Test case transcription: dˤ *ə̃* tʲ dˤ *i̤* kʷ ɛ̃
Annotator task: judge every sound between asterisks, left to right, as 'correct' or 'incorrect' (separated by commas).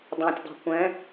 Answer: incorrect, correct